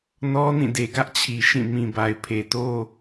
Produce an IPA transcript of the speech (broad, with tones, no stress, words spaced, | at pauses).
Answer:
nɔ˦nĩ˦˨ de˨ɡä˦ʔt͡ɕʰi˨ ʃĩ˦˨ mĩ˨ba˨ɪ̯pʰe˨to˦